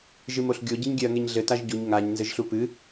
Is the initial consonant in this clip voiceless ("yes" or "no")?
no